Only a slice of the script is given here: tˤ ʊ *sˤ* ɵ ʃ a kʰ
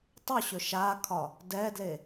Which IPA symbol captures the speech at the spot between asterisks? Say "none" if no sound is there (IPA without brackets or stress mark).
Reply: ɕ